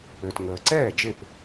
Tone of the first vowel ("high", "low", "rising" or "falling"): low